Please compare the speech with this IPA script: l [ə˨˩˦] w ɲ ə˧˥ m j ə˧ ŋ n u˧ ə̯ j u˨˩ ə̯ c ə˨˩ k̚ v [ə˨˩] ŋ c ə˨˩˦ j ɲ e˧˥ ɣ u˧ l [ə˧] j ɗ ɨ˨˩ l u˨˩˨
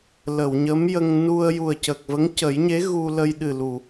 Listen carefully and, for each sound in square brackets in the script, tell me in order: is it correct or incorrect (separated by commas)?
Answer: incorrect, incorrect, correct